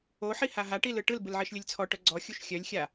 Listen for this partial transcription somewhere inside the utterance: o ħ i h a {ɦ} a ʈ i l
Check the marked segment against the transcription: correct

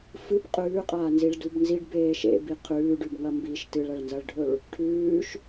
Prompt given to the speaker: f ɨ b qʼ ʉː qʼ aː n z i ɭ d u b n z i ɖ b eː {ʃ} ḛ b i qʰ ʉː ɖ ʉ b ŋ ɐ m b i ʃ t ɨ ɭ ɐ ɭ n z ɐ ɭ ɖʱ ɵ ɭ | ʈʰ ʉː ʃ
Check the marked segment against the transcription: correct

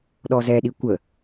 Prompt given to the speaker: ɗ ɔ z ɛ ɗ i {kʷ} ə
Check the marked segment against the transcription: correct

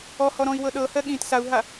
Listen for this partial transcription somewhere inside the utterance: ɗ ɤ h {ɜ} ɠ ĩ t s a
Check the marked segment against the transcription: correct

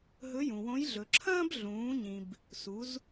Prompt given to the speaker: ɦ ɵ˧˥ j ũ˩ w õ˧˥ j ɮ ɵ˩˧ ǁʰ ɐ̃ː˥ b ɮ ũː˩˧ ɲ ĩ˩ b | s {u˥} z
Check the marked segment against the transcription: incorrect: u˩˧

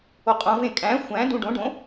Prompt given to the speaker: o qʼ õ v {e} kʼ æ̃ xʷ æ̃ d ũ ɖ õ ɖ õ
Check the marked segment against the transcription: incorrect: ẽ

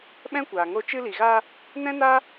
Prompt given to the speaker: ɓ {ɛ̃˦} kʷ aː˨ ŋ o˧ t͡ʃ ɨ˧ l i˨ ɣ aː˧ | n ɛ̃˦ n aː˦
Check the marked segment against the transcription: correct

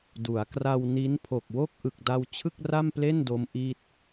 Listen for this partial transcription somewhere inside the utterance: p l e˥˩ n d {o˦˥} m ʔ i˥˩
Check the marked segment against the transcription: correct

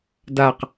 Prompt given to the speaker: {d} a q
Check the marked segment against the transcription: correct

